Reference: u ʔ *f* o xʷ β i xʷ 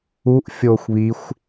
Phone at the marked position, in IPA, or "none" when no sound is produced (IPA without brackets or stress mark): fʲ